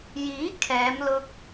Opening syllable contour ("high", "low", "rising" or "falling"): rising